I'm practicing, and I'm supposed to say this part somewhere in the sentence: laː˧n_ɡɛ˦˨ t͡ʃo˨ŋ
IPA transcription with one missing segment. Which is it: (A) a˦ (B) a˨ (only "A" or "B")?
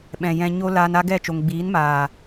A